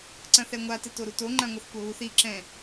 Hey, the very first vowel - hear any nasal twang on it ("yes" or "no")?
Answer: yes